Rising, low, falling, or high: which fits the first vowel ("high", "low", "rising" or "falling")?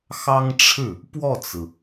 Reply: high